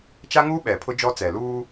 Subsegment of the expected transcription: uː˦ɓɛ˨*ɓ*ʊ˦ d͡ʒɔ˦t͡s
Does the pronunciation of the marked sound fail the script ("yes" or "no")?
yes